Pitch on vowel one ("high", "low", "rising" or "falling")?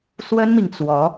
high